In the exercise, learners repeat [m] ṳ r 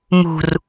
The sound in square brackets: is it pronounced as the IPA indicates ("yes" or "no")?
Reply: yes